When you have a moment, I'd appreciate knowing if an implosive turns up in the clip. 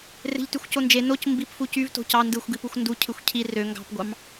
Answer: no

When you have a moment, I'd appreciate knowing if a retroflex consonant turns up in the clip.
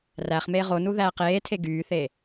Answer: no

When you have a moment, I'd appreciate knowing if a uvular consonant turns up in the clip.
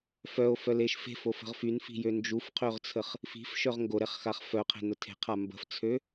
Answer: yes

